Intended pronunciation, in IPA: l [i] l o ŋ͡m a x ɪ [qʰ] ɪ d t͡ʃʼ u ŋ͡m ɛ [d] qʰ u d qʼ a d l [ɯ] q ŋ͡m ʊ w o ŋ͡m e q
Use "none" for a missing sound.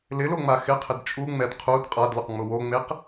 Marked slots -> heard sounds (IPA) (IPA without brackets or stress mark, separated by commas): ɪ, qʰ, d, ʊ